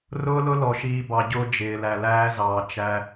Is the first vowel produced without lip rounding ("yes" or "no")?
no